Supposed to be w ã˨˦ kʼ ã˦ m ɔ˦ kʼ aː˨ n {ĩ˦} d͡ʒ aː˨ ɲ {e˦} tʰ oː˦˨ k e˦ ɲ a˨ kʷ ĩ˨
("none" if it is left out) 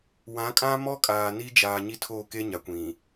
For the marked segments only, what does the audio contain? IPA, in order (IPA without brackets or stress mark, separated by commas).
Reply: i˦, i˦